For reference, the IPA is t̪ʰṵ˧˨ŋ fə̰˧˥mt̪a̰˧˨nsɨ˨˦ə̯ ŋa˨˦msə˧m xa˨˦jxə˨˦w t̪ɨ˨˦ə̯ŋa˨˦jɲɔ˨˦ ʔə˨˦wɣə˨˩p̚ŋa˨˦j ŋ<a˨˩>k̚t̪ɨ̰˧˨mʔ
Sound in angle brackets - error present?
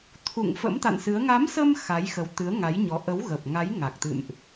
no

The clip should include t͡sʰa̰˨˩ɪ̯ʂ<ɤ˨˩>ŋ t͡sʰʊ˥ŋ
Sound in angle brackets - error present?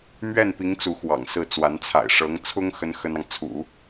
yes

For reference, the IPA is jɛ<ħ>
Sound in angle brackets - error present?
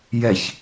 yes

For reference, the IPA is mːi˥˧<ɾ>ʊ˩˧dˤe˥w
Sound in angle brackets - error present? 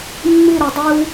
no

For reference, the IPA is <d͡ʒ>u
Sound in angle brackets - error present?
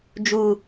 no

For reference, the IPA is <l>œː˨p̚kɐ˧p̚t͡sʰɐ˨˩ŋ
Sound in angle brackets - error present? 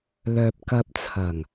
no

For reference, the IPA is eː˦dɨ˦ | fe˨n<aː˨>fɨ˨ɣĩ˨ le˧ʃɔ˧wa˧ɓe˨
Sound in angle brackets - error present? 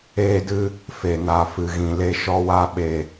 yes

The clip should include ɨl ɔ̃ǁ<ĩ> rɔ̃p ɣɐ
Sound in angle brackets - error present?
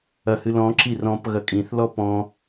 yes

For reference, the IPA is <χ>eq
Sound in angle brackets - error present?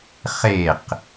no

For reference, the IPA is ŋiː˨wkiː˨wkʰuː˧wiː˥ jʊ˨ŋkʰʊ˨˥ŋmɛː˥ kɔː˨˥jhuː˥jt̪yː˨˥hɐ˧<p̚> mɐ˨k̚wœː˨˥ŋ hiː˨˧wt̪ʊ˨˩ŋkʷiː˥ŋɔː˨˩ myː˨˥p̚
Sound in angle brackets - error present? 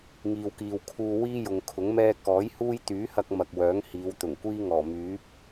yes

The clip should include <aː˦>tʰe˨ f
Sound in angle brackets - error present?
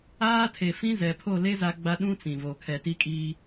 no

